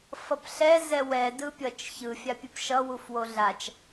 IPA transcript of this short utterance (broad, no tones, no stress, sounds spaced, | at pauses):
f ʌ p ɬ ɛ z ɛ w ɛ d ɯ pʲ ʌ t͡ʃ ç ɯ fʲ a pʲ ɯ p ʃ ʌ w u f w o ɮ a t͡ʃ